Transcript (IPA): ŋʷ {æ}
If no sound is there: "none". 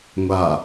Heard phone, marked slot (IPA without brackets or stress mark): a